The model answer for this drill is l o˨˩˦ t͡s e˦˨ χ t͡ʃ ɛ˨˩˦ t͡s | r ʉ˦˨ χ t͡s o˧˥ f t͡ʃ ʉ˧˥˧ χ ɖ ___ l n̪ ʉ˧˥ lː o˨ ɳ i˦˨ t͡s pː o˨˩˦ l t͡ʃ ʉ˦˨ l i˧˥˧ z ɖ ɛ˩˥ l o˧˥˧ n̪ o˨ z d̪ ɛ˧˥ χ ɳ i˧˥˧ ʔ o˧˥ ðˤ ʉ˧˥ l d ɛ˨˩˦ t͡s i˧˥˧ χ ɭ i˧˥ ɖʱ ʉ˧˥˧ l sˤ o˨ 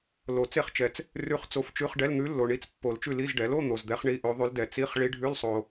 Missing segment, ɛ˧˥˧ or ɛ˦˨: ɛ˧˥˧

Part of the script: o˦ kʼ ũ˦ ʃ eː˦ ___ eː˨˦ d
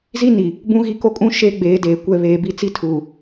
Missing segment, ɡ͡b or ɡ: ɡ͡b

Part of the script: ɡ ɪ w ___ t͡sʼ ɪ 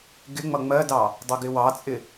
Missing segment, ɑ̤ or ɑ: ɑ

